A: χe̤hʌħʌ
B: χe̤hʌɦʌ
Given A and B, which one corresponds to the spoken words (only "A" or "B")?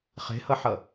A